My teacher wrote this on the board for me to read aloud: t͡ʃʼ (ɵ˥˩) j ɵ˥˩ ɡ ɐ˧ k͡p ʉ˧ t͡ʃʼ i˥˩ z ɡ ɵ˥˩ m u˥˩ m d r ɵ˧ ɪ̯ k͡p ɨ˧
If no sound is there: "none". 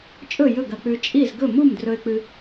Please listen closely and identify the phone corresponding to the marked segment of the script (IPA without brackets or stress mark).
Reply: ɵ˥˩